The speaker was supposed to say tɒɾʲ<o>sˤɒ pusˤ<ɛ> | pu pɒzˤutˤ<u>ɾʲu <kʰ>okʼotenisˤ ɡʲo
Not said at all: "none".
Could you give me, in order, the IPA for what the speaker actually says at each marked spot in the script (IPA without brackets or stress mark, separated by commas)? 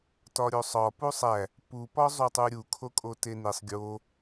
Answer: o, æ, u, kʰ